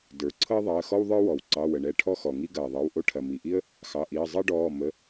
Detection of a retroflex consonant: present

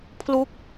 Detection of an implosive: absent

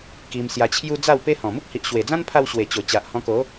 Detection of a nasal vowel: present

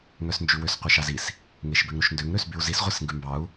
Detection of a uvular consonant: present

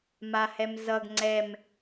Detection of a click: present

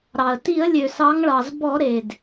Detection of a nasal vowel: absent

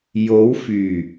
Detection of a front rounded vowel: present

